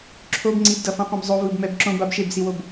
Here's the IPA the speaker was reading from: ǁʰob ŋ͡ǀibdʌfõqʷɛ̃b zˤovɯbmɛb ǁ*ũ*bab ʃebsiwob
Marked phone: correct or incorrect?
incorrect